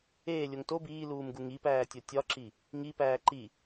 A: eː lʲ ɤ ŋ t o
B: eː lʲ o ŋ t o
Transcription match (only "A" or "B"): B